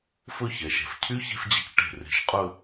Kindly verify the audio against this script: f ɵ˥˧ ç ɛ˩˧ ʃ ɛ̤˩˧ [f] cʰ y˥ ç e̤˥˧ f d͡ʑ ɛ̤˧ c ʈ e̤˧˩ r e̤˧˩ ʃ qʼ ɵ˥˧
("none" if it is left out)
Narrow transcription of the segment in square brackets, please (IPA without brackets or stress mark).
f